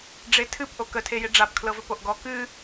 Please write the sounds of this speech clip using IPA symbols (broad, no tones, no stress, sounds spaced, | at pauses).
ɖ͡ʐ e tʰ ɨ p ʔ o k ə tʰ e j e ɖ͡ʐ a p kʰ l ɤ v ɵ p o ʔ ɡ ɔ k ɨ